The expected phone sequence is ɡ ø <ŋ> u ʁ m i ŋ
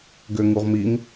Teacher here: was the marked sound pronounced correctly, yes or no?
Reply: yes